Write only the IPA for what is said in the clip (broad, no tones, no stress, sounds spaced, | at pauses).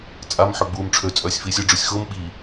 t͡sʼ a m ħ ø ɡ͡b uː m ʈ͡ʂʰ ø t͡sʼ œː sʲ f iː sʲ ʊ ɖ͡ʐ u sʲ x ʊː m ɓ i